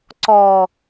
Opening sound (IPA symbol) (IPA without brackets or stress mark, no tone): ǀ